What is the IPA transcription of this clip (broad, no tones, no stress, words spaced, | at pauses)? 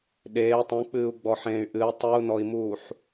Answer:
ɗeː tˤũk͡pɨːu̯ ɡ͡bɔħẽːy̯ʔɨi̯ tˤɨu̯nɔi̯muːħ